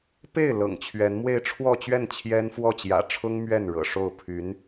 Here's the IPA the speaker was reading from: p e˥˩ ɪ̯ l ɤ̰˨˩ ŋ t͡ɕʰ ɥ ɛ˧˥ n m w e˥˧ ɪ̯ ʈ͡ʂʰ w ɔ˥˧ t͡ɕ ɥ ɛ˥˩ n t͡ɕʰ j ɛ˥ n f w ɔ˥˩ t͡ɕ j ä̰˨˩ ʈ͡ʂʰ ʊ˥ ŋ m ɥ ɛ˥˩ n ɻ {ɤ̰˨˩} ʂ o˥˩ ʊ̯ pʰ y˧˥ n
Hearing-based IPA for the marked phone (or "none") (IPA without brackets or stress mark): ɤ̰˨˩